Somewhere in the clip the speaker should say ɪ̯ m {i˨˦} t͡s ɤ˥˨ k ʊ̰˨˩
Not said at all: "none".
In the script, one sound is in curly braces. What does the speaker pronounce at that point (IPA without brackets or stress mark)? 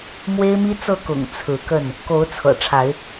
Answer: i˦